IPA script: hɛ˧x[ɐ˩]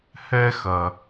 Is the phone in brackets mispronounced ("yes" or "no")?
no